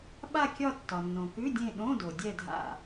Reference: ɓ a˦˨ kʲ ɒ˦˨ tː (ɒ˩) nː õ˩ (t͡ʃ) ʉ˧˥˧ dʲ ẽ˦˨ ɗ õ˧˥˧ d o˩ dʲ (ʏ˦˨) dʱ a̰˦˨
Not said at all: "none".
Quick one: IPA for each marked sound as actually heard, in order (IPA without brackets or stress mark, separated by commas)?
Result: ɒ˩, k, ɛ˦˨